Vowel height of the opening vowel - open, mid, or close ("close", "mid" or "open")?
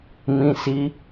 close